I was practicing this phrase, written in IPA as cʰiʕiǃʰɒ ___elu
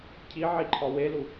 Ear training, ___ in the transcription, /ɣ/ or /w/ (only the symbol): w